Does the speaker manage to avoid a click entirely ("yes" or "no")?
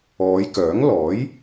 yes